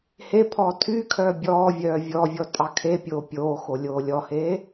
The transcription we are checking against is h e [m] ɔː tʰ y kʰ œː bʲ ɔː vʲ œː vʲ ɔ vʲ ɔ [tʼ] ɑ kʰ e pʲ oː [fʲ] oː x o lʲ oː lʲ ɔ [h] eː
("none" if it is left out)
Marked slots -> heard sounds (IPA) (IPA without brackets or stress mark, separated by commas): pʰ, tʼ, pʲ, h